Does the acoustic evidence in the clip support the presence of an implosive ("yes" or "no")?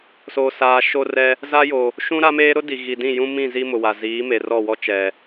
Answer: no